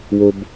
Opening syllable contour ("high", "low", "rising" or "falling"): low